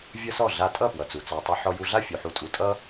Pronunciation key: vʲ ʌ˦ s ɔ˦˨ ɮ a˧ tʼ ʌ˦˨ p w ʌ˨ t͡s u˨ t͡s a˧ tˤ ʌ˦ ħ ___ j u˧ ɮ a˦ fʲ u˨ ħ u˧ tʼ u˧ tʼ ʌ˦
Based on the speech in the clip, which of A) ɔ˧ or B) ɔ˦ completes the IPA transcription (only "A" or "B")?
A